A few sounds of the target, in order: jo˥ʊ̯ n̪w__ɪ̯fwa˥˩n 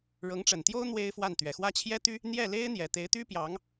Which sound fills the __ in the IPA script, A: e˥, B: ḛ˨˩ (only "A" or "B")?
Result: A